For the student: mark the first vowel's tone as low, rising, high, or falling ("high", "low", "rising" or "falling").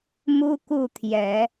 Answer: high